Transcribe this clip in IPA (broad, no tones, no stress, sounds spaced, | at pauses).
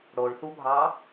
ɽ o ɭ θ u bʱ ɑ